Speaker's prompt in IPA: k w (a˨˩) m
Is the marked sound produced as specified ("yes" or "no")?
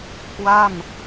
no